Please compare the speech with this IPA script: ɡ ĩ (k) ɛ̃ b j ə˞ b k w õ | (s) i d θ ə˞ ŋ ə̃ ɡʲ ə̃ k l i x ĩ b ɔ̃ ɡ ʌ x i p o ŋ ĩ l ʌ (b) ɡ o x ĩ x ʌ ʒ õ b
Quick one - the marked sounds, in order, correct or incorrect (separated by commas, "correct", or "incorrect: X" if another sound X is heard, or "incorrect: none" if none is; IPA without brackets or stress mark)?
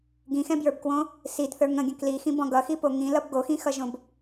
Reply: incorrect: x, correct, correct